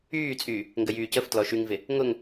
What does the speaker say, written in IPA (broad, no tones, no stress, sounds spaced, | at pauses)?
yː t͡sʼ yː | ŋ ɡ ə j yː c ə f t l ɔ ʃ y ŋ v ɪ | ŋ ʊ ŋ